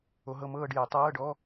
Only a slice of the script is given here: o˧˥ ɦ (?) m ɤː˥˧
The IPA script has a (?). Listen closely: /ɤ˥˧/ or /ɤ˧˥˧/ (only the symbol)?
ɤ˥˧